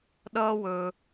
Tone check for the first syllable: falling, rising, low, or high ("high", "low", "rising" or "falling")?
high